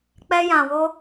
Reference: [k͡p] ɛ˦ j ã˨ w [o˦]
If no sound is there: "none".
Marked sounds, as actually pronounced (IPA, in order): k͡p, o˦

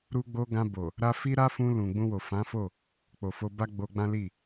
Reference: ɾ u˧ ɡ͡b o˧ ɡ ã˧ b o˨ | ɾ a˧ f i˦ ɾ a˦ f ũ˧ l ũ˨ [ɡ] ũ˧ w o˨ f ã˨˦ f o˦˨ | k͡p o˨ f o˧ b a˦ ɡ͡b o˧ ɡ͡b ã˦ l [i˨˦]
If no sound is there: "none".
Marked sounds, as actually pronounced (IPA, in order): ɡ͡b, i˦˨

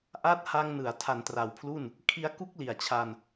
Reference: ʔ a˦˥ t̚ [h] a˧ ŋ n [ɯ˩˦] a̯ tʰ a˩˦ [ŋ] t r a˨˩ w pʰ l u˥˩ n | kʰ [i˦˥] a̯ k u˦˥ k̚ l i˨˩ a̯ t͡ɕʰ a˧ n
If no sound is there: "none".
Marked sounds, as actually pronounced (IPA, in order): h, ɯ˩˦, n, i˧

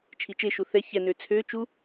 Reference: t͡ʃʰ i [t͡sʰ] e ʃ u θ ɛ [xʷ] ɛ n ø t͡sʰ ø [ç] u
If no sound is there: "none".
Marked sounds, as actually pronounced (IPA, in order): t͡ʃ, ç, t͡ʃ

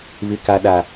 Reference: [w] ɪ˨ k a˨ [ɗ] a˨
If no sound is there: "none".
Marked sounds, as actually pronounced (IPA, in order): β, ɗ

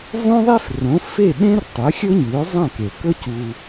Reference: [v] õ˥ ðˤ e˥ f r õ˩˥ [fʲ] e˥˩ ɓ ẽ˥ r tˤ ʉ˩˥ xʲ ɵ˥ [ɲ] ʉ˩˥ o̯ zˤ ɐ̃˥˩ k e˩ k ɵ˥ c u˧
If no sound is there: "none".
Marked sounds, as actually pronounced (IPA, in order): v, f, ɲ

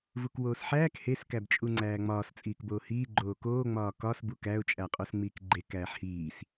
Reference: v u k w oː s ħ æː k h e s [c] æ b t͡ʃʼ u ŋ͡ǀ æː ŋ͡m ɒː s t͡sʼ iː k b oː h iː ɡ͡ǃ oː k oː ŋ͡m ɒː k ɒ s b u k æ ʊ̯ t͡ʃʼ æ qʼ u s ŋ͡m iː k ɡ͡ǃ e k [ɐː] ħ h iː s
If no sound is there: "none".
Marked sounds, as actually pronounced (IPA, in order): k, æː

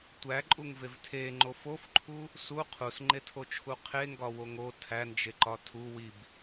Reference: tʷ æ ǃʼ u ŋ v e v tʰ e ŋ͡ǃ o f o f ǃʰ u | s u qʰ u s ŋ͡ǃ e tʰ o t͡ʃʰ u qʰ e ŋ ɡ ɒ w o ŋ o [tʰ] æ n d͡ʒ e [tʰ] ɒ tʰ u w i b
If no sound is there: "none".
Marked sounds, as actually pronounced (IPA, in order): tʰ, ǃ

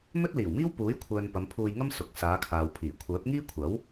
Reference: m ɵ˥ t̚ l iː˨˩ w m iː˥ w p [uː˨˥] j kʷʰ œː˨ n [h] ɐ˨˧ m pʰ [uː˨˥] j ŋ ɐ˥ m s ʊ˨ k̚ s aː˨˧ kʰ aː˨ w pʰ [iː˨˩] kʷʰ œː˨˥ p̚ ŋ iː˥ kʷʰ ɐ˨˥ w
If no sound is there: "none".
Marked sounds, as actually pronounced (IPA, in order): uː˨˥, p, uː˧, iː˨˩

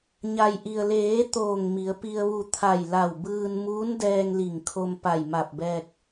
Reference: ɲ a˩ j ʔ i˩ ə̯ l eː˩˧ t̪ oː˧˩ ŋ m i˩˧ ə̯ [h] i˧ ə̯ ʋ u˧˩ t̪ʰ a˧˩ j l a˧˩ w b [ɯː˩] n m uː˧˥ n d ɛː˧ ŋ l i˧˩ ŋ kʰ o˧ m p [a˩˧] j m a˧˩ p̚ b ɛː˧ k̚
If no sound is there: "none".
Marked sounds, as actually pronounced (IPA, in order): p, ɯː˧, a˧˩

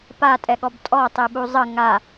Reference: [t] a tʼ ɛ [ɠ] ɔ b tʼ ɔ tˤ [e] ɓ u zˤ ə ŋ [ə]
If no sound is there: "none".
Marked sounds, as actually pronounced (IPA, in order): p, ɠ, e, a

